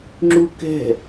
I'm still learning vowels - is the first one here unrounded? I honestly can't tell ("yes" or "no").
no